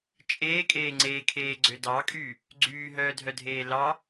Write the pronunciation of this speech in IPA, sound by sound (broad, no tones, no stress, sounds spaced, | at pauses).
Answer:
t͡ʃʼ eː kʼ eː ŋ͡ǀ eː kʰ eː ɡ͡ǀ ø d ɑ kʼ yː | ɡ͡ǀ yː ɦ œː dʱ œ dʱ eː l ɑ